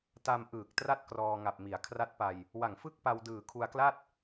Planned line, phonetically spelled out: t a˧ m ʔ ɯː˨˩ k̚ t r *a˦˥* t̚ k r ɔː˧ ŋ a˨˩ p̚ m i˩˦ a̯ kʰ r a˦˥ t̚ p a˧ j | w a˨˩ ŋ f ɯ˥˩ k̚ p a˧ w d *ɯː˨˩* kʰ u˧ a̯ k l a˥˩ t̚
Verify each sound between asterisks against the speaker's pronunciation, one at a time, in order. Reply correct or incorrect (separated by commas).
incorrect, correct